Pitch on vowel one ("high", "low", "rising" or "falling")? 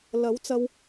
rising